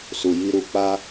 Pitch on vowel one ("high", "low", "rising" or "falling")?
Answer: low